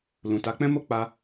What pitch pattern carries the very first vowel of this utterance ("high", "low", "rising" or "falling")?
low